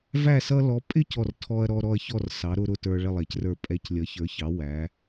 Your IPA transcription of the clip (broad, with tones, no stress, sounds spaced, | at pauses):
v æ˥˨ s ʌ˦ l ɔ˨˥ pʼ ɪ˥˨ c ɔ˥˨ r tʰ ɔ˦ ɐ̯ ɾ ɔ˦ ɾ ɔ˥˨ ɐ̯ ç ɔ˥˨ r s ɑ˨˥ ɾ ʊ˦ ɾ ʊ˥˨ t ə˞˦ ɭ ɪ˥˨ lˠ ɛ˨˥ c r ə˞˥˨ pʼ ɛ˨˥ c lʲ ʌ˨˥ ç ə˞˨˥ ç ɑ˨˥ w æ˨˥